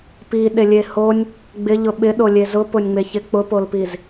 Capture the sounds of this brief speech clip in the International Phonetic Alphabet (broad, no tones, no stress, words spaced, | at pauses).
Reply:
piɗelʲe honʲ | ɡ͡bɪʎʊ ɓɪɗolʲe zʊpʊnʲŋ͡meçɪ k͡pʊpolpiz